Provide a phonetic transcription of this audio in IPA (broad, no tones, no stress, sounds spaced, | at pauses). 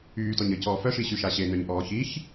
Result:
yː t ɔ ɲ ə c ɔː f œ ʃ i ɕ y ʃ a ɕ e n œ ɲ ʔ ɔː ç i ç